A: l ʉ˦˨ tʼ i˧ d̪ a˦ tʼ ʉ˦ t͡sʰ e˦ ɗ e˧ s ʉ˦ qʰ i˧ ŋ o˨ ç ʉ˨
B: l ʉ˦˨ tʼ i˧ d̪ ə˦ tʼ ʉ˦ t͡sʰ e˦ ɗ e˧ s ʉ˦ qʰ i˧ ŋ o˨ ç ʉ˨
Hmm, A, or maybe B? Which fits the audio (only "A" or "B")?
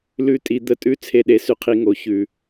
B